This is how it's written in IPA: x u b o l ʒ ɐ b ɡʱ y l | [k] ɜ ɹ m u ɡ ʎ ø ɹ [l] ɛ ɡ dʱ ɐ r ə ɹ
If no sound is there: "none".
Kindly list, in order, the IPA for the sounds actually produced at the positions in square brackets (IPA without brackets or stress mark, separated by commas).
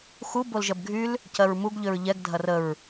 c, ʎ